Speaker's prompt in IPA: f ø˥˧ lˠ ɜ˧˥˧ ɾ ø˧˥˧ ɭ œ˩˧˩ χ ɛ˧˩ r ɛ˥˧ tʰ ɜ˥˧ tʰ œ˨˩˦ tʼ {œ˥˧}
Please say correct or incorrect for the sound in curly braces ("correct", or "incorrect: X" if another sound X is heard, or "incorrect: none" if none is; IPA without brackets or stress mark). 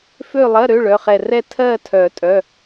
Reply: incorrect: œ˩˧˩